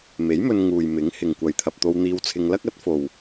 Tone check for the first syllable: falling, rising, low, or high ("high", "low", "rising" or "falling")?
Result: rising